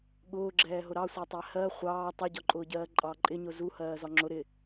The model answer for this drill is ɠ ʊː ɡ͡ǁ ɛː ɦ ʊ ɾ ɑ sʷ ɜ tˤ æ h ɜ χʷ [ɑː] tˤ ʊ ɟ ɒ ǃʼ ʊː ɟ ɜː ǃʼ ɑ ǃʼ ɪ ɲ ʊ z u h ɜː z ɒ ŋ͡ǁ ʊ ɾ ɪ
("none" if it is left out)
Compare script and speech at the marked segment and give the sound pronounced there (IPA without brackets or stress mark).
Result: ɑː